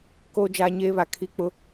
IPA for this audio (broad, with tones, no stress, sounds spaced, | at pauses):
k oː˦ d͡ʒ aː˦ ɲ eː˦ β a˨ kʰ i˦ k͡p ʊ˦